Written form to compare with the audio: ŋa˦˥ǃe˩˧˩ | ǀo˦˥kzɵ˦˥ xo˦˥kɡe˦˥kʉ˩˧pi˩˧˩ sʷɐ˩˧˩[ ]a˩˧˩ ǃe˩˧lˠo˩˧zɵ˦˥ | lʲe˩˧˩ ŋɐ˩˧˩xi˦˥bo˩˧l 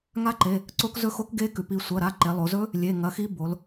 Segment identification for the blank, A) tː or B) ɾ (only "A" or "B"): B